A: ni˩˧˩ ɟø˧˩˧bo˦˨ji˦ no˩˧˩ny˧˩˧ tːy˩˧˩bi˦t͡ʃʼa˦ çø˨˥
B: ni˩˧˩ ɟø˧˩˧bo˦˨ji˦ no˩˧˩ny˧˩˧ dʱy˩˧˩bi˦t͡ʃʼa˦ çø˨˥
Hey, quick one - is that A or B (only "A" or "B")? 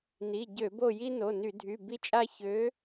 B